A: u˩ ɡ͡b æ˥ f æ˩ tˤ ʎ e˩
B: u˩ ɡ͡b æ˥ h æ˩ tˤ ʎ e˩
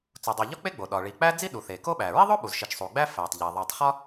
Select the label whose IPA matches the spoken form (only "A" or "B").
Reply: A